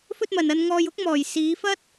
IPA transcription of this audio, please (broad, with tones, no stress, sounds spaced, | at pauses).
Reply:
f ɵ˧ t̚ m ɐ˨ n ɐ˧ n ŋ ɔː˧ j ʊ˥ k̚ m ɔː˨ j s iː˨˧ f ɐ˥ t̚